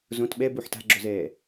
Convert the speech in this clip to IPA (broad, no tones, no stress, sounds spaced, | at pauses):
z õ t ɓ ɛ b u ħ t a̤ ɡ͡ǁ o z ɛː